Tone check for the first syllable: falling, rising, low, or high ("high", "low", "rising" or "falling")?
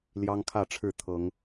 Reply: high